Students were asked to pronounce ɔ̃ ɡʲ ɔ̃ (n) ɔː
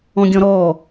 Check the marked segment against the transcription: incorrect: ɾ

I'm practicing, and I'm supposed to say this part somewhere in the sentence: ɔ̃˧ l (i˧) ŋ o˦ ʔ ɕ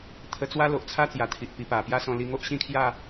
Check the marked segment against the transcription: correct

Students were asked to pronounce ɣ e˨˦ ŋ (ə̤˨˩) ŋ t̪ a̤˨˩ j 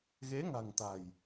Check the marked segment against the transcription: incorrect: a̤˨˩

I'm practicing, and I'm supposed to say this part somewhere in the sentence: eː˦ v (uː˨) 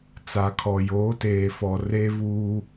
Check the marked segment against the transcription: incorrect: uː˦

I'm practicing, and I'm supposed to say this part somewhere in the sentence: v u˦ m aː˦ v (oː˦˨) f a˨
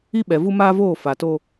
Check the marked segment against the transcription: correct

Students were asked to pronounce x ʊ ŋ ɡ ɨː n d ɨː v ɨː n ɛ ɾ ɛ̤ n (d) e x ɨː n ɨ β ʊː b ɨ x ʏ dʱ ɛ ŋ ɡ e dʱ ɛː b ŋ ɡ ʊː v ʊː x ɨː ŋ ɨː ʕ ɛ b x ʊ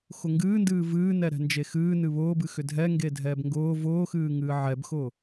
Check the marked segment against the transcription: incorrect: d͡ʒ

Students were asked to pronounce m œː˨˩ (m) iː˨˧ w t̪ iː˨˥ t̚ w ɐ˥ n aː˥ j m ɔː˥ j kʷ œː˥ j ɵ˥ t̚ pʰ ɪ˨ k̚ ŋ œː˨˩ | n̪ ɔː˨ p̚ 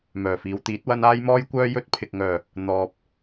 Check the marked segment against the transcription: incorrect: f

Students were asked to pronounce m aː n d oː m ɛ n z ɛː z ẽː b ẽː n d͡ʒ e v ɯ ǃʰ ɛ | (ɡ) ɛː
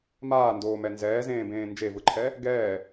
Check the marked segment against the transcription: correct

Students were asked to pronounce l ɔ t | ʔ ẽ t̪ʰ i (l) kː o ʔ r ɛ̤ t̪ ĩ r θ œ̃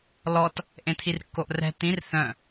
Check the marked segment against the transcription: incorrect: r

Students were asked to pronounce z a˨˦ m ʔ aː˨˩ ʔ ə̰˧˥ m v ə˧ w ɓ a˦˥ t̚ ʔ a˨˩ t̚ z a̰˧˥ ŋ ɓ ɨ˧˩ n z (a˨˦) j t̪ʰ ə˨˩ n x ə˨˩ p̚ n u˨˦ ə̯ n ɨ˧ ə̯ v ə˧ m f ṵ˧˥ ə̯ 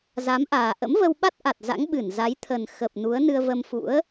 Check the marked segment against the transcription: correct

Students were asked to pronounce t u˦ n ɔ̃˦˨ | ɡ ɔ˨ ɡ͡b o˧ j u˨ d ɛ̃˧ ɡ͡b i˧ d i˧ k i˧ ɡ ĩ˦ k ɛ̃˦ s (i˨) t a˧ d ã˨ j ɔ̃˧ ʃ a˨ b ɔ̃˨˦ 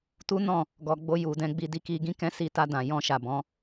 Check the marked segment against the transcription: incorrect: i˧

